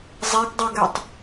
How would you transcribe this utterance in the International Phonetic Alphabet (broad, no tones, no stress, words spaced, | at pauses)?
zˤeɡdˤɵɡɛtˤ